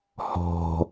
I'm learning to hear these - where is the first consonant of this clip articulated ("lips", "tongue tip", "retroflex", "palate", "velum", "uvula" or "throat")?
throat